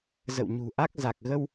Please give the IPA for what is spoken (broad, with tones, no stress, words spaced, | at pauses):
zə̰˧˨wɲṳ˨˩ʔa˦˥k̚ za˨˩k̚ɣə˧w